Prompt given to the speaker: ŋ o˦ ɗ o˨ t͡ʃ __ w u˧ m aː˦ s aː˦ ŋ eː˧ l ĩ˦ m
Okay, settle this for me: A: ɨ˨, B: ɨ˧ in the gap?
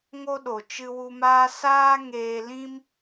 B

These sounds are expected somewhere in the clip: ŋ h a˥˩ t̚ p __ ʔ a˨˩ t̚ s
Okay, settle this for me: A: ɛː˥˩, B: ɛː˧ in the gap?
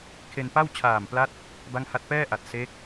A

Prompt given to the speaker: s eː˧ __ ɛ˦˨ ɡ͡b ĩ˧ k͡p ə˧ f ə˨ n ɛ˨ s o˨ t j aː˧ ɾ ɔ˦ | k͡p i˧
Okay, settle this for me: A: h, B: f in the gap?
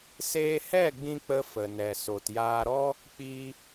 A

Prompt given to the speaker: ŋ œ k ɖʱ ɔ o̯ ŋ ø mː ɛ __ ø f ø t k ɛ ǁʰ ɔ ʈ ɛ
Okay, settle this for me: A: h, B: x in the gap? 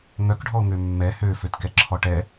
A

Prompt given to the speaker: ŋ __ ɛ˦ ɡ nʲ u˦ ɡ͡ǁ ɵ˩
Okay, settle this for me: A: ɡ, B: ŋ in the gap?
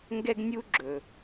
A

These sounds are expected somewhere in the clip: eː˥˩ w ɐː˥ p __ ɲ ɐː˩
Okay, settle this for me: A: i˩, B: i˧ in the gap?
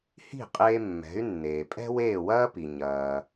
A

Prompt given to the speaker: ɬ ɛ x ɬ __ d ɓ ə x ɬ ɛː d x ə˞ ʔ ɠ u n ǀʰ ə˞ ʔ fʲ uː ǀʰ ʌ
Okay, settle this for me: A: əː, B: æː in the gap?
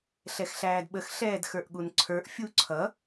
B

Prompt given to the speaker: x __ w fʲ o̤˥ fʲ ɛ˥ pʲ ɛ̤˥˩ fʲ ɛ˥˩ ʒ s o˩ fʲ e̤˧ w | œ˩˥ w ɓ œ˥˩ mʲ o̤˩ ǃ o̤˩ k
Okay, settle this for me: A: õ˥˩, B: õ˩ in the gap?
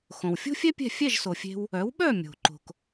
B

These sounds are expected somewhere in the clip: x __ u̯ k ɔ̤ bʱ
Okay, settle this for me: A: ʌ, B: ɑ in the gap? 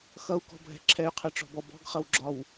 A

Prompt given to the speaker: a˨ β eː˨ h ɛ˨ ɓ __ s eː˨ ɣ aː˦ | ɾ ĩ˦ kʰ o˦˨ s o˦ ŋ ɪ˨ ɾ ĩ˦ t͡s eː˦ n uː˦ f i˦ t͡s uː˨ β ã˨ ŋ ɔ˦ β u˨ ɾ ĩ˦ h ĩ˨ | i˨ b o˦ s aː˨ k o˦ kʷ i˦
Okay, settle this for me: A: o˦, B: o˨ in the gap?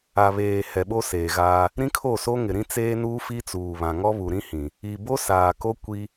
A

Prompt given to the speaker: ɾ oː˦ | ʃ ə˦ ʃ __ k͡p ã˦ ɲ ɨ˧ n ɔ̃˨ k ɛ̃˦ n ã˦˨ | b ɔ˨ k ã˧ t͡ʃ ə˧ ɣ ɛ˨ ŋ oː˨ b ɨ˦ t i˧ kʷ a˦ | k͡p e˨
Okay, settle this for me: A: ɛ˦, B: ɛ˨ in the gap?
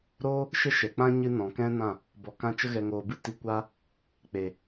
B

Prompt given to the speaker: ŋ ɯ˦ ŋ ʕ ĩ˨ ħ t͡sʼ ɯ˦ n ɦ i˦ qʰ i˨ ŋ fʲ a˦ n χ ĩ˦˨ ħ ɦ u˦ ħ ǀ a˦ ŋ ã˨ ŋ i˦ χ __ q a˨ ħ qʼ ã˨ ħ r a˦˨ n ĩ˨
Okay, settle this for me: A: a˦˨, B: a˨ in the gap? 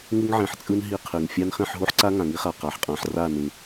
B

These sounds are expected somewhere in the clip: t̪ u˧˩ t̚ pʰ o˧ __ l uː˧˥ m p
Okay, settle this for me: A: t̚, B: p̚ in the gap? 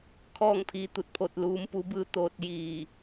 A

